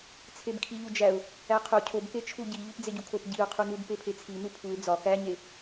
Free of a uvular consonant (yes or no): no